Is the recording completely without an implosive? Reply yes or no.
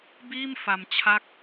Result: yes